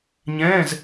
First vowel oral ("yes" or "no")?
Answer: no